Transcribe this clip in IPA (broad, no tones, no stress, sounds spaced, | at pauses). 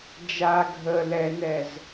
d͡ʒ a ɡʱ ə l ɛ n ɛ z